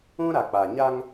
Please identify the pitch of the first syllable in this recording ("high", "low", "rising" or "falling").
high